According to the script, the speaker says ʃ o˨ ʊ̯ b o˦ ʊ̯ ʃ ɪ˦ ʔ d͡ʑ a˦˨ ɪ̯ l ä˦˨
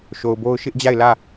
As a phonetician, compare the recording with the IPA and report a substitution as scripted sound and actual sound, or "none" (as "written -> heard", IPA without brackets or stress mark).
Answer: none